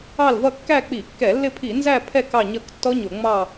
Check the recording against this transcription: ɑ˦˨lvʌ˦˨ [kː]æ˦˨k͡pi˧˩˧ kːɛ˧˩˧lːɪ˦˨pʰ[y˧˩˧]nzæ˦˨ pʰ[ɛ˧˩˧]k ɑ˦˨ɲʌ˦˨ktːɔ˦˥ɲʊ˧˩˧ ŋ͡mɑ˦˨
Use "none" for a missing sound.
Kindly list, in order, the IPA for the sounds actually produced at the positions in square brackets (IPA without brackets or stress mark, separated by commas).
kː, i˧˩˧, ɛ˦˨